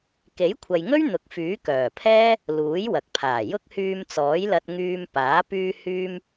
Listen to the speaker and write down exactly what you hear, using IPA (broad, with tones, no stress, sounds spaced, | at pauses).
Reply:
k e˨˥ j kʷʰ ɐ˨ j ŋ ɵ˥ ɥ n̪ ʊ˨˥ k̚ f yː˨˥ k œː˨˩ pʰ ɛː˥ | l uː˨˥ j w ɐ˨ k̚ pʰ aː˨˩ j ʊ˥ k̚ h yː˧ m t͡s ɔː˨˥ j l ɐ˧ t̚ ŋ yː˧ m p aː˨˥ p yː˧ h yː˧ m